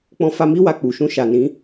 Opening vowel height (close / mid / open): mid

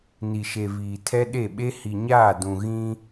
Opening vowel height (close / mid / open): close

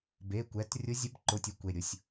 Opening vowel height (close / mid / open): mid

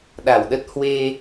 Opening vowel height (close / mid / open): open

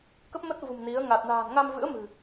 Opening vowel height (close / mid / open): mid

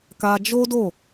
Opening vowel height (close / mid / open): open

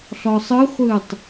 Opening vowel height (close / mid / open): mid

